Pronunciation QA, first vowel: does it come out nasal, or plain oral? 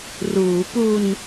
oral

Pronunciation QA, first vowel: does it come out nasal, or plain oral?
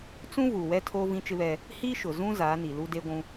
nasal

